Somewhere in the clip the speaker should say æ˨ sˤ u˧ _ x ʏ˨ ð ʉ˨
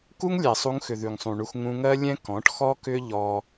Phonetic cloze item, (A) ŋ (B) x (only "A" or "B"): A